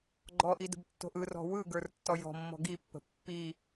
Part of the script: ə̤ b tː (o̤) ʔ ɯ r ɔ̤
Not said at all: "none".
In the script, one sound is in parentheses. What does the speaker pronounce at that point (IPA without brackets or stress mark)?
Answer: o̤